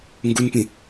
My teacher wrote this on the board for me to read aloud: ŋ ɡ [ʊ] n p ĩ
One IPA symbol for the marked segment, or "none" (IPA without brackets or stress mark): u